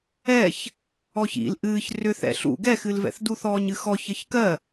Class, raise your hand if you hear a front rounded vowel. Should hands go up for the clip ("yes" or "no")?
yes